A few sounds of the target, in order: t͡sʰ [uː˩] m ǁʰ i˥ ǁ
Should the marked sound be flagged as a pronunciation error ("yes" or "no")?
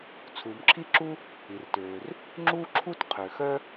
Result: no